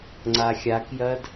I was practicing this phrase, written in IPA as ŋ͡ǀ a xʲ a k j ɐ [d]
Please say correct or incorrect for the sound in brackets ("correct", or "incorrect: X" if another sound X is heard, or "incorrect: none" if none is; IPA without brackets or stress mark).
correct